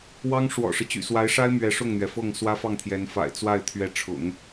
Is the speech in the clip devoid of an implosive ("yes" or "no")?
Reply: yes